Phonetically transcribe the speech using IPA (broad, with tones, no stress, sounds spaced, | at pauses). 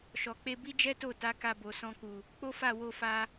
ʃ ɔ˨ k͡p e˧ b i˦ d͡ʒ ɛ˦ t o˦˨ t a˨˦ k a˧ b o˨ s ɔ̃˧ k u˨ | k͡p o˦ f a˦˨ w o˧ f a˦